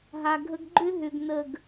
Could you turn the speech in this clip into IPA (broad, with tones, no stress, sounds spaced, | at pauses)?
ɦ a˨ ɡʱ ə˦ ɡ ɡ͡ǃ ʏ˦ ɦ ʏ˨ ɡ n ə˦˨ ɡ